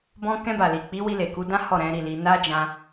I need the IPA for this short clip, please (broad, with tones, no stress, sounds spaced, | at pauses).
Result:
b ɔ̃˧ k ɛ̃˧ b a˨ l i˨ k͡p i˨˦ w i˧ l e˨ k u˧ d ã˦ h ɔ˦˨ ɾ ɛ̃˨˦ ɾ i˦˨ l i˧ n a˦ d͡ʒ ã˧